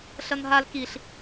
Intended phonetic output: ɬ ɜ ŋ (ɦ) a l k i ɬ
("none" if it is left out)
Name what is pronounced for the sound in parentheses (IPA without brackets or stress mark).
ɦ